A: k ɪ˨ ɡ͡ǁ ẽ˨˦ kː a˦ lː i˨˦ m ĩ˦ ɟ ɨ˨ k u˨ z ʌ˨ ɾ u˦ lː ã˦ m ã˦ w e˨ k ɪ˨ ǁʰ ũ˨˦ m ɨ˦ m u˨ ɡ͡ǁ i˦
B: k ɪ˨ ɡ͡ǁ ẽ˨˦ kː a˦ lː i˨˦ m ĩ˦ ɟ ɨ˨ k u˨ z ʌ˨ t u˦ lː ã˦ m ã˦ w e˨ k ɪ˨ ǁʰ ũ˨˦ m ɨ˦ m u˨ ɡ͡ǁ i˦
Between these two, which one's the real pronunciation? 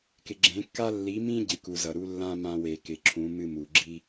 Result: A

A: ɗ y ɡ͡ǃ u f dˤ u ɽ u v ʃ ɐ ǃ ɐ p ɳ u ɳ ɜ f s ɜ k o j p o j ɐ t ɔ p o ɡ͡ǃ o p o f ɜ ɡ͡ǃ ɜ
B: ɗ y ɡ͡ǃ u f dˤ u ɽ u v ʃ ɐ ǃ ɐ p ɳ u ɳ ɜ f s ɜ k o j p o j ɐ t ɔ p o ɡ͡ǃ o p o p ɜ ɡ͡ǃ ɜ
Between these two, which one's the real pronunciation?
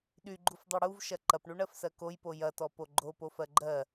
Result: A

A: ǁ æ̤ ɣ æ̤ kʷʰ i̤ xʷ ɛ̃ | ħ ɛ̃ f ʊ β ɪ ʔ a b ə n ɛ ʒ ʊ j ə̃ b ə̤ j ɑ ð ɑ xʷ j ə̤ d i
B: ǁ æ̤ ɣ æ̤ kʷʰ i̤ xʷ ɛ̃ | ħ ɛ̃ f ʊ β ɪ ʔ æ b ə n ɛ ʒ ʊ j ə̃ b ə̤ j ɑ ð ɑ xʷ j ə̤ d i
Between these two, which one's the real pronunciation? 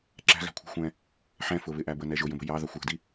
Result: B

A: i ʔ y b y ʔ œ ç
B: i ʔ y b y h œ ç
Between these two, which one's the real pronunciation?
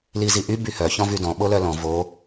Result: B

